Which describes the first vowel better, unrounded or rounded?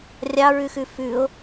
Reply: unrounded